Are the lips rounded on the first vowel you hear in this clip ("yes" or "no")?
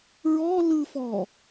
yes